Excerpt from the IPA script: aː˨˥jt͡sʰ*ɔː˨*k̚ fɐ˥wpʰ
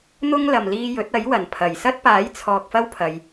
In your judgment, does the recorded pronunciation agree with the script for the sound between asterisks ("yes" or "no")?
yes